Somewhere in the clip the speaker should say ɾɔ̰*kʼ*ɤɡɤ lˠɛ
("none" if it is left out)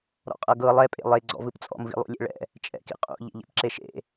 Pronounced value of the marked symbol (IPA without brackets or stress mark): qʼ